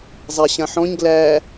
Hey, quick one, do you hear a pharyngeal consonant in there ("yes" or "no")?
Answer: yes